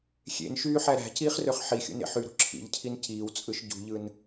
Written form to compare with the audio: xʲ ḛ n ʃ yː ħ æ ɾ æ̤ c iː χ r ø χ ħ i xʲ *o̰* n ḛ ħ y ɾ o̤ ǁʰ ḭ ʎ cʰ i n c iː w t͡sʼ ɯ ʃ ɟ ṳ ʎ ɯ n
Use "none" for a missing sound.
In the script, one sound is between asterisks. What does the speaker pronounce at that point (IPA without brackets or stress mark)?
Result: o̰